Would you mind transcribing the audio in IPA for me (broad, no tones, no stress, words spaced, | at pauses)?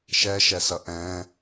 ʃɛʃɛsʌ ʔɛ̃